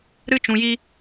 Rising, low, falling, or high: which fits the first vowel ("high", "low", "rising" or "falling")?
high